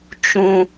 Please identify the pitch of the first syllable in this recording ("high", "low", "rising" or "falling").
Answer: high